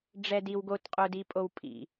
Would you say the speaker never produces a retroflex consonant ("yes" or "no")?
no